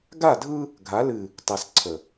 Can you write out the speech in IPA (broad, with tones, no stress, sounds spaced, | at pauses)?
ɡ a˦˨ dʱ ɯ˦ | ɡʱ a˨˦ l ɨ˨ | tˤ ɨ˨ s ǀʰ ə˨